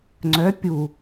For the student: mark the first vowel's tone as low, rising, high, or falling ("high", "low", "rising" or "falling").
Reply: rising